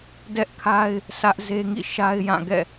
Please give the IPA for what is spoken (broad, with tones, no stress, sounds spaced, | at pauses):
d ɛ˦ ʔ kʰ a˦ ɪ̯ | s ä˦ ʔ z e˦ ŋ ḭ˦˨ ʃ a˦ ɪ̯ j ã˦˨ ɡ ɛ̰˦˨